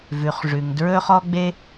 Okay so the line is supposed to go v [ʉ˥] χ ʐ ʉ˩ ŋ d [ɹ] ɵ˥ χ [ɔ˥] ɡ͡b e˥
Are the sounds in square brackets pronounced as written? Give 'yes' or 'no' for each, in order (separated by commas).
no, yes, yes